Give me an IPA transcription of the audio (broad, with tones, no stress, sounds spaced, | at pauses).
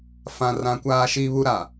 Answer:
f ã˨ r ã˨ kʷ aː˦ ʃ i˦ β u˦ ɾ a˨